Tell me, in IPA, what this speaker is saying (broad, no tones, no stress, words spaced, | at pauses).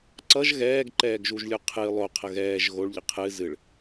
ǀʌʒ ɣɛːɡǃɛːɡʒuʒlʲu qʰɨ lˠo qʰəɣɛːʒ ɣoɭʎə qʰɨ zɨɭ